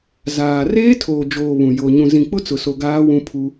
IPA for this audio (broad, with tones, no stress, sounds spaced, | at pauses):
z aː˨ r eː˦ tʰ oː˨ d͡ʒ oː˨ β ũ˨ j o˨ ɲ ũ˨ z ĩ˨ k͡p ʊ˦ t͡s ʊ˨ s o˨ ɡ aː˦ w ũ˦ pʰ u˦